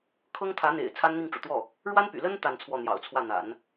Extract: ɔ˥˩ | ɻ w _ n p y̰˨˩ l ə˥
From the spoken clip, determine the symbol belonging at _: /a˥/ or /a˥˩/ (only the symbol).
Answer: a˥